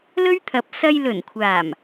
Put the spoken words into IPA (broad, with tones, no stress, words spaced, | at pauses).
lɵ˥ɥt̪ʰɐ˨˥p̚ sɐ˧j lɵ˨˩nkʷʰaː˨˩m